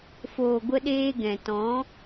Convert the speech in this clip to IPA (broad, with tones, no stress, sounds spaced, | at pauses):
f oː˨ ɡʷ ə˧ ɗ eː˧ ɡ ɛ̃˨ t ɔ̃˨˦